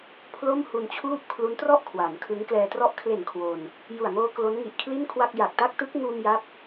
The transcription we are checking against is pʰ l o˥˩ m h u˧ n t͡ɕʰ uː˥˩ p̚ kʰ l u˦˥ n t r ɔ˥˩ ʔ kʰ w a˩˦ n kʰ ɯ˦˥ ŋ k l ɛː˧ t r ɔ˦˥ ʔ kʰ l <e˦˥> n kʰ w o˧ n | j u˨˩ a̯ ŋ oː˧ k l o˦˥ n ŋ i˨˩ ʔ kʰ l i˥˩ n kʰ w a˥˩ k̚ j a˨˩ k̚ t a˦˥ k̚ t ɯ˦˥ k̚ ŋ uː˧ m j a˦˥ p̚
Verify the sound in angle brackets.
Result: incorrect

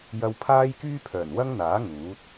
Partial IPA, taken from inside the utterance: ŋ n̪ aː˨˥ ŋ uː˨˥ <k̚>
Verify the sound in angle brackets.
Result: incorrect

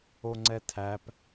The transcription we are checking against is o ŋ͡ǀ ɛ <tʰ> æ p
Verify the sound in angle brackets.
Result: correct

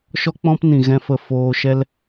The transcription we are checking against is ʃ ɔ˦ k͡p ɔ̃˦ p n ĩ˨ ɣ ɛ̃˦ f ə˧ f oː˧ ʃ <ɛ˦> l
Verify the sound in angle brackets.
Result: correct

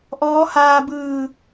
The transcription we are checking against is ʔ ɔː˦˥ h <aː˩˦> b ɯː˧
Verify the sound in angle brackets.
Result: incorrect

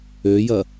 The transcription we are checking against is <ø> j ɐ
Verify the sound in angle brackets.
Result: correct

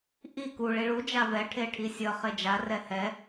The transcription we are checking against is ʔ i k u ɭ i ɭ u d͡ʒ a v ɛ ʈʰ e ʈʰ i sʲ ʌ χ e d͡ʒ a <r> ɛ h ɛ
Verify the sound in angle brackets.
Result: correct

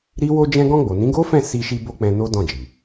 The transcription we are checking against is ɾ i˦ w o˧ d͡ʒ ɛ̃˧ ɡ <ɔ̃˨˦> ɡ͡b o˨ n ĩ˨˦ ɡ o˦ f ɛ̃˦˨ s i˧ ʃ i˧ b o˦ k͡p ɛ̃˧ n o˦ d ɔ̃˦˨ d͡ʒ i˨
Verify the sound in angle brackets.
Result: incorrect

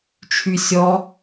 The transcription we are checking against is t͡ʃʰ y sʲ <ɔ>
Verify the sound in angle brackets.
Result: correct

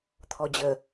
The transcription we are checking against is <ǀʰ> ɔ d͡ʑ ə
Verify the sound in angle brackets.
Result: incorrect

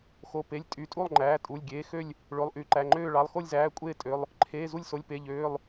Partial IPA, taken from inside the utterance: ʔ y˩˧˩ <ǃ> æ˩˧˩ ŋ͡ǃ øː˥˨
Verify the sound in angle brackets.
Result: correct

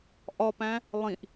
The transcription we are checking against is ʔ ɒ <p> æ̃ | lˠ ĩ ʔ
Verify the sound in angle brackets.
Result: correct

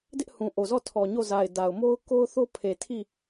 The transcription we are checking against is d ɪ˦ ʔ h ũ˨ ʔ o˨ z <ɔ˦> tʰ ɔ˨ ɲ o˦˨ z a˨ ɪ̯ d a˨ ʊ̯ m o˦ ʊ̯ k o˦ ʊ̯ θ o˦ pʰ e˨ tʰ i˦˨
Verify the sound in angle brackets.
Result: incorrect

